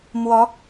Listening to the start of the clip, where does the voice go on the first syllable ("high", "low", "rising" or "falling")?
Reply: rising